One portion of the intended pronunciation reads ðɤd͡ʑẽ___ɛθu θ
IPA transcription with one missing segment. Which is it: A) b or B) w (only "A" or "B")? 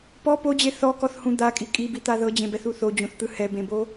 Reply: A